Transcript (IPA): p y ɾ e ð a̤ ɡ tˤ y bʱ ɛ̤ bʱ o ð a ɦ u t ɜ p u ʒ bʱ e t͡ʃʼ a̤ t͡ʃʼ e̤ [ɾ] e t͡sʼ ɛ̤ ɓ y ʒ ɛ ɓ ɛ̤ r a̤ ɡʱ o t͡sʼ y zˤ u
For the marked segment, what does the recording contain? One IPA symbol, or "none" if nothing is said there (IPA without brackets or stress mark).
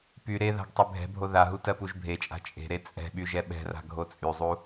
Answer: ɾ